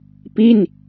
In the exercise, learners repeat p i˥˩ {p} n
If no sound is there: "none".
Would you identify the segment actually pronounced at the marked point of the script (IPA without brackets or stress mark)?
none